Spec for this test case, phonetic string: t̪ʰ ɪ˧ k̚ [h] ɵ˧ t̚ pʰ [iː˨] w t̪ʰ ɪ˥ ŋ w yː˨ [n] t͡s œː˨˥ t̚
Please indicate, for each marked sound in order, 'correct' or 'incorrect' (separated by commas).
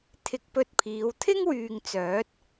incorrect, incorrect, incorrect